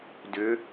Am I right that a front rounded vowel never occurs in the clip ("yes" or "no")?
no